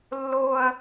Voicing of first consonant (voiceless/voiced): voiced